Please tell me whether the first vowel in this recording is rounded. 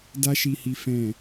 no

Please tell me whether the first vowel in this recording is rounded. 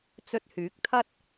yes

